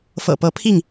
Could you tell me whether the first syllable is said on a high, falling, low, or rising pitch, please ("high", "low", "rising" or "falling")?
low